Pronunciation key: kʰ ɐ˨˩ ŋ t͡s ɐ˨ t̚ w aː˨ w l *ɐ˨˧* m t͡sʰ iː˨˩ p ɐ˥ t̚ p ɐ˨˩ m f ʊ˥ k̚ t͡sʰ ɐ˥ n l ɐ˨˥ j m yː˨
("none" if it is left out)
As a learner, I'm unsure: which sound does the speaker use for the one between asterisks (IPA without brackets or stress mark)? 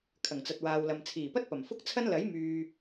ɐ˨